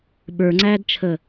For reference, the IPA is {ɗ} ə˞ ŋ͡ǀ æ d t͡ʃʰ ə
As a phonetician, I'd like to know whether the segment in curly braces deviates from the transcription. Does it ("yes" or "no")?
yes